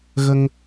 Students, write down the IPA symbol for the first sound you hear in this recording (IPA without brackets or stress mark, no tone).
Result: ɣ